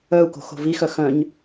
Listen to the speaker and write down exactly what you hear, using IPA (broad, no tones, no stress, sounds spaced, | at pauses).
œ u̯ k o̤ x o̤ v i x œ x œ̃ ɲ